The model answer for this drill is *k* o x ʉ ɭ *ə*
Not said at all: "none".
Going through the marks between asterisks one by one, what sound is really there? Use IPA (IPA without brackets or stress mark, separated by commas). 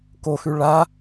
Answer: k, a